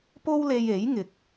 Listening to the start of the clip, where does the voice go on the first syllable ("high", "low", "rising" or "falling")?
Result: high